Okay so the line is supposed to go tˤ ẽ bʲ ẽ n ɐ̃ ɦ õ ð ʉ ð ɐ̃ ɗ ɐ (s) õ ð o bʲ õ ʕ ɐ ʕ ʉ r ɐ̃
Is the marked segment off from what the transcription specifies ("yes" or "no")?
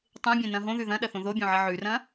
yes